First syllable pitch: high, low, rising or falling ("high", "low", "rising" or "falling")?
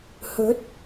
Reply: rising